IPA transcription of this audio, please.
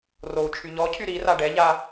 rou̯t͡ʃʰy ʎɔcʰy ɾira ɖɛʎa

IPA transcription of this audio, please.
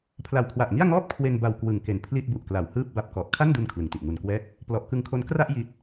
pʰla˨˩wkʰwa˨˩ʔŋi˥˩a̯ŋɔː˥˩p̚ kʰwe˧nba˨˩w kwɯ˨˩ŋke˨˩npʰli˥˩t̚ bu˨˩ʔkla˩˦w hɯː˥˩p̚ba˦˥p̚kɔ˨˩ʔ kʰa˥˩ndu˧n kʰlɯ˨˩ŋti˨˩ʔŋu˨˩nkwɛː˥˩k̚ | plɔ˨˩ʔkɯ˧ŋkʰo˦˥n kra˥˩ʔ ji˦˥t̚

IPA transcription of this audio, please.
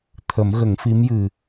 t̪ʰə˨˩˦mɣə˨˩˦ŋfi˧˥mjɨ˨˩

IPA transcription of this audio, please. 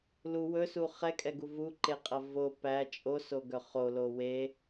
lu wɵsu χɛkʼɛɡu vuǃeqʼɐ vo pæ t͡ʃʼosoɡœ χolo we

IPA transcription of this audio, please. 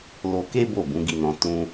lo˧ke˦ bo˦˨bũ˨˦ɡi˧nɔ̃˧ tũ˧

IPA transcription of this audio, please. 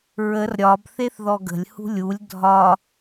ɹər ɾʲɒb θeθðɔɡə̤lʲhṳ lʲulʲ dʱɒ

